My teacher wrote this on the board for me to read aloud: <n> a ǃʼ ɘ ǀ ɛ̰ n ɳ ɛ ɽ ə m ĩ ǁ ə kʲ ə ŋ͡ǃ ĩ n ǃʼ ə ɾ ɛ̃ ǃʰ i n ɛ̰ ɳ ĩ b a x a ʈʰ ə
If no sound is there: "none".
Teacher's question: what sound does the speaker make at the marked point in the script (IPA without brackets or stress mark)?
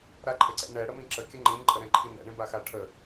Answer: ɾ